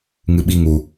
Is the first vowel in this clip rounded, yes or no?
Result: no